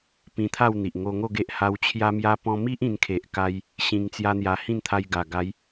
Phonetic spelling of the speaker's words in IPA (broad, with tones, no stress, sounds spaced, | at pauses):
p ĩ˧ t̪ʰ a˥˧ w n̪ i˨ ʔ ŋ o˧ ŋ o˥˧ ɡ e˦ ʔ h a˧ w t͡ɕʰ j a˦ m j a˦ p ɔ̃˧ m i˦ ʔ ĩ˧ n kʰ e˨ ʔ k a˦ j | ɕ ĩ˧ ŋ t͡s j a˦ n̪ j a˧ h ĩ˥˧ n t̪ʰ a˧ j ɡ a˨˩ ɡ a˨˦ j